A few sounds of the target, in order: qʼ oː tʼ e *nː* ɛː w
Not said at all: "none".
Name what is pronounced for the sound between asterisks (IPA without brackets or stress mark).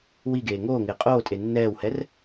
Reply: nː